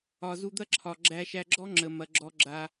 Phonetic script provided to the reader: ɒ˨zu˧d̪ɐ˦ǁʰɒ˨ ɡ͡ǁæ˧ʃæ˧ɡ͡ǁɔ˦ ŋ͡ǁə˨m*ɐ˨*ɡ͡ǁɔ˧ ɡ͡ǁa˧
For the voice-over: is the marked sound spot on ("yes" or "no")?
yes